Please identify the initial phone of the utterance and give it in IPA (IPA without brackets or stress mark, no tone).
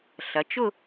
ɬ